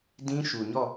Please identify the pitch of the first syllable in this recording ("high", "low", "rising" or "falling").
high